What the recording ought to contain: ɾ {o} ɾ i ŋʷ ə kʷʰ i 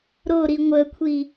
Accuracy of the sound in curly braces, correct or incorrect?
correct